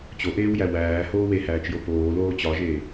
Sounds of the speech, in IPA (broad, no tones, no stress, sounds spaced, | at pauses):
t͡ɕ o ʔ eː w j æ w æː h oː w e h æː t͡ʃ j o p oː l oː t͡ɕ ɒ ʒ eː